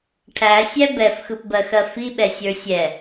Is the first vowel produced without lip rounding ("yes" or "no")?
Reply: yes